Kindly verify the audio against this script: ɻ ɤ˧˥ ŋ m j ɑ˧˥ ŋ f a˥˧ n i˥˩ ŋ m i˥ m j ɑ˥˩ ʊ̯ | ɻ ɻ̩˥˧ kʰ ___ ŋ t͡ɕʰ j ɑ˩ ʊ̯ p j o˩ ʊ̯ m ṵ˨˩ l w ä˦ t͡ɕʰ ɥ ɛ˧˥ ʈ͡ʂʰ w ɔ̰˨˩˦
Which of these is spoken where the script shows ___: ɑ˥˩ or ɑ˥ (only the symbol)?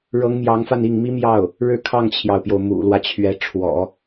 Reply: ɑ˥˩